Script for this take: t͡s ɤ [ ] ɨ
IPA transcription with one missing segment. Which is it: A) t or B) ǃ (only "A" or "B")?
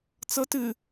A